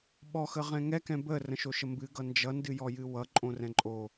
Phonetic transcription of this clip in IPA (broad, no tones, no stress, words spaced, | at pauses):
ɓɔxəʁɛ̃ ŋɛkɛ̃ bə rə̃ʃoʃəmbɨ ɡʌnd͡ʒʌndɨ jɔjɨwʌǃʼõ rɛ̃ǃʼo